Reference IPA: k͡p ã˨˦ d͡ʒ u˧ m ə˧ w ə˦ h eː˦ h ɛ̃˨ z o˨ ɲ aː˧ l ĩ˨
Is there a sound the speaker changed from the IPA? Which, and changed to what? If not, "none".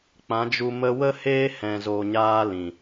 none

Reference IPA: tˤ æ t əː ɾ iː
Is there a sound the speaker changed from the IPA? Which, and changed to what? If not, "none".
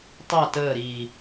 none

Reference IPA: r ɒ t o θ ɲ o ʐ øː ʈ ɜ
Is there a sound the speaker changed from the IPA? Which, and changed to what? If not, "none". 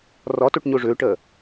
θ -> ʈ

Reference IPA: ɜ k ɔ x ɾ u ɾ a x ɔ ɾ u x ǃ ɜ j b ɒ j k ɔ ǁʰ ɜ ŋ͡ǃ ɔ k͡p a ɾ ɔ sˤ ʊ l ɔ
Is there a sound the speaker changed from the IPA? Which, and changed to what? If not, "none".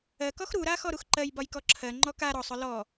k͡p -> k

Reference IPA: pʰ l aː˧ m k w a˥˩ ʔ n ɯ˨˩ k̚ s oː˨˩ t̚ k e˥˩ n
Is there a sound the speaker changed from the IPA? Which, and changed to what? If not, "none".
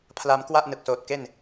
none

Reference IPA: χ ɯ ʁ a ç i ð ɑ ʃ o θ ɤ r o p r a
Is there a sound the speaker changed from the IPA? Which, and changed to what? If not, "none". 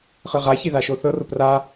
ɑ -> a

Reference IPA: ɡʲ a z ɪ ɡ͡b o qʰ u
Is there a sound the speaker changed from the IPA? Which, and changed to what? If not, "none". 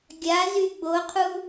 ɪ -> y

